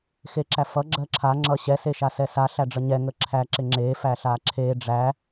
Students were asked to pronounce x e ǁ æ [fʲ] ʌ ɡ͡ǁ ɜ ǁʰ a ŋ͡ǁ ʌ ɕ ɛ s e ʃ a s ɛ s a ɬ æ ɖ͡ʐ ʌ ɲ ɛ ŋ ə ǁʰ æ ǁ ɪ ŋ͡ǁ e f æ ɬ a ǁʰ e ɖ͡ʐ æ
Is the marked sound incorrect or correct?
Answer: incorrect